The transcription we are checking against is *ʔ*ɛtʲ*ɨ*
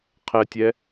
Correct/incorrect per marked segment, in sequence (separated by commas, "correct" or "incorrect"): incorrect, incorrect